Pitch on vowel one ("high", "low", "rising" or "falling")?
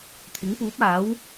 rising